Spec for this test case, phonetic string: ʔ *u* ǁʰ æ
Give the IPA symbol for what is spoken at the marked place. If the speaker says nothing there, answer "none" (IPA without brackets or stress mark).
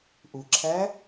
u